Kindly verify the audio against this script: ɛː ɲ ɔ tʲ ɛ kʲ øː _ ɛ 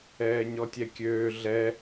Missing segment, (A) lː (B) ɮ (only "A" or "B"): B